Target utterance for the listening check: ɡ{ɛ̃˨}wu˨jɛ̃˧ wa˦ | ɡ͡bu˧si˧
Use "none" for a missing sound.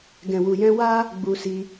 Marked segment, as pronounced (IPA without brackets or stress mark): ɛ̃˨